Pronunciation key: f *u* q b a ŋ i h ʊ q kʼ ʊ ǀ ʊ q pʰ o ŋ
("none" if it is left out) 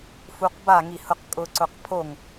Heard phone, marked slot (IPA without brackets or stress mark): u